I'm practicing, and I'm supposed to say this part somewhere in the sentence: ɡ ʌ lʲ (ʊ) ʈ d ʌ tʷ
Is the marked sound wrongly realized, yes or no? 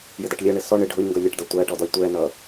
yes